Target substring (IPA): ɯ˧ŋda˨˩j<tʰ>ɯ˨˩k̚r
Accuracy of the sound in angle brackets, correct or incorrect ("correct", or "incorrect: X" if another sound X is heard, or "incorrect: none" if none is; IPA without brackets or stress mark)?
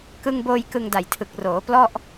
correct